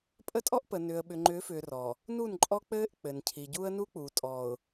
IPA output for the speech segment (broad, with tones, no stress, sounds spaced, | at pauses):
pʼ ə˦ tʼ ɔ˦ ʔ p ə˨ n ʏː˨ ə̯ ɓ ʏ˨ ŋ͡ǃ ʏː˨˦ f ʏː˨ r ɔ˨ | n u˦˨ n ǃʼ ɔ˦ k͡p ɘː˦ ʔ k͡p ɘ˨ n cʰ i˨ ɟ u˦ ə̯ n u˦ k͡p u˨ tʼ ɔː˨ ʊ̯